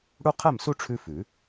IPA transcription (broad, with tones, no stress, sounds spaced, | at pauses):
ɽ u˥ qʰ ɛ˥˨ m s u˥ ʈ͡ʂʰ ʉ˥ f ʉ˨˩˦